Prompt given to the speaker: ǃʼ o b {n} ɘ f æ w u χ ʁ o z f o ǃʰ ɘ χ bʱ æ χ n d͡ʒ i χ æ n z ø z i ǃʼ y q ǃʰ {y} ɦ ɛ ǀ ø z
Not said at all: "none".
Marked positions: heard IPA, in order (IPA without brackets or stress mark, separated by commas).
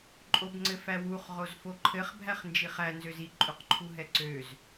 ŋ͡ǀ, u